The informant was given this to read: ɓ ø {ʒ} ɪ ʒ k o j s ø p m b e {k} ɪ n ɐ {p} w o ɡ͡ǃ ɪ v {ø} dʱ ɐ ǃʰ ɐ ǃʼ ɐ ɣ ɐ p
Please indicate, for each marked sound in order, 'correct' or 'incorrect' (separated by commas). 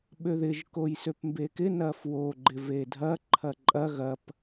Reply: incorrect, correct, incorrect, incorrect